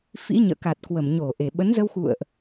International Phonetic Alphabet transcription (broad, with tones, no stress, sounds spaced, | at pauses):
f ḭ˧˥ ɲ ə̰ː˧˨ k a˨˩ t̚ k w ə˧˩ m ɲ o˧˩ ʔ e˧˩ ɓ ə˨˦ n z ə˧ w x ṵ˧˨ ə̯ ʔ